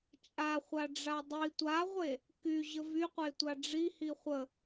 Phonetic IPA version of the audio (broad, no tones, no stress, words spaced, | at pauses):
t͡ʃʼaχʷaɖ͡ʐa dˤi tʷaʁʷe | kyʑə vyqʷetʷa ɖ͡ʐihi χʷə